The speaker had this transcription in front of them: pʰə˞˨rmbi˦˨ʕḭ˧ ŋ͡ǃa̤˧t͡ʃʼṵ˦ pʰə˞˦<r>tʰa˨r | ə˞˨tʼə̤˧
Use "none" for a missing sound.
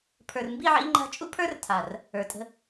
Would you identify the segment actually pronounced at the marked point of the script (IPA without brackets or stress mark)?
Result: r